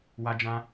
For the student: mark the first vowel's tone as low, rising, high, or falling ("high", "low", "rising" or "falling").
high